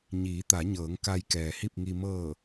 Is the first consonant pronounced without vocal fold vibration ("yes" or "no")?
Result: no